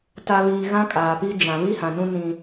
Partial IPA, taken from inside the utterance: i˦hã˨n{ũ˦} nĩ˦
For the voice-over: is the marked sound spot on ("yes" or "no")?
yes